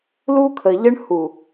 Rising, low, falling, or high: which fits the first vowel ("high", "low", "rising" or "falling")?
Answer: high